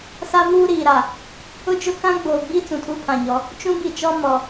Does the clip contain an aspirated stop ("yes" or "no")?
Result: yes